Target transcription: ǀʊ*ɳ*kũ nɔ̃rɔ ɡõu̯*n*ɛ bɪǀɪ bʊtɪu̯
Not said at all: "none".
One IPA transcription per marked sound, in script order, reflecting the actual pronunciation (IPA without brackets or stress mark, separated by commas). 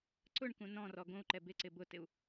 ɳ, ǃ